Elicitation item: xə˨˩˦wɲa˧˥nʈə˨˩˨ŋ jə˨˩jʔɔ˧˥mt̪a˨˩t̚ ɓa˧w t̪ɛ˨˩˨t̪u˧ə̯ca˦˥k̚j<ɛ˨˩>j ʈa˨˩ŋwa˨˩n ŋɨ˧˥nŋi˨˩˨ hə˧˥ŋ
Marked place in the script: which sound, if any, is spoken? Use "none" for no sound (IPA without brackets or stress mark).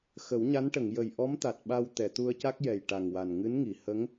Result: ɛ˨˩